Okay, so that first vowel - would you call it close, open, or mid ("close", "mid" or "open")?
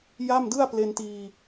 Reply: open